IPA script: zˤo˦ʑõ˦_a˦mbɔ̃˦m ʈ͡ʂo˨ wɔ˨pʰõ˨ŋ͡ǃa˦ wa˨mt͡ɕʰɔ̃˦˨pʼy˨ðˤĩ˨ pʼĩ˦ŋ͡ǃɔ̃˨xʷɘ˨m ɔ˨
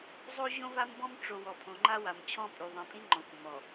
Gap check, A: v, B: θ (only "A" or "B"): A